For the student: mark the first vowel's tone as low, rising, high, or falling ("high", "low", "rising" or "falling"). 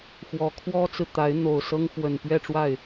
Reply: rising